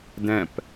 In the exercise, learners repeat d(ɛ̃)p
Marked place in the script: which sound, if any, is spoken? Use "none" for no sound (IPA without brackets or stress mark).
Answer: ɛ̃